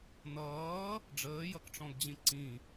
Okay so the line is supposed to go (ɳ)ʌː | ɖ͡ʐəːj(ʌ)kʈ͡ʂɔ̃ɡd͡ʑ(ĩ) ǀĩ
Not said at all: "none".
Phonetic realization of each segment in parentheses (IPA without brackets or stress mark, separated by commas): n, ʌ, ĩ